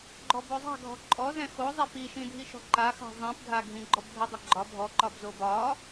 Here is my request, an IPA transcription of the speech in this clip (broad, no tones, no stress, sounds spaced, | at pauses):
ɡ͡ǃ ɔ b o zˤ a̤ ɡʱ ɔ̤ ǃʼ ɔ z ɛ̃ x o zˤ ɛ p i ʃ ĩ dʱ i ʃ ɔ̤ ǃ a x a̤ zˤ ĩ p ɡʱ a ɡʱ ĩ ɡ͡ǃ ɔ b ɡʱ ɛ dˤ ə ɡ͡ǃ ɒ bʱ ɔ ǃ ɒ b z o b ɒ